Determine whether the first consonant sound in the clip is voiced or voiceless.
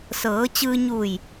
voiceless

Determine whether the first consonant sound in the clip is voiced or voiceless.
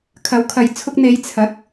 voiceless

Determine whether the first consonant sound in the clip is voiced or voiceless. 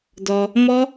voiced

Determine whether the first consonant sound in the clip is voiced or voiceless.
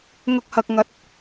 voiced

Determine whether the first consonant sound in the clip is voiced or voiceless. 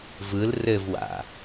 voiced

